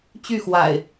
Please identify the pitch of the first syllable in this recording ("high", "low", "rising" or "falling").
falling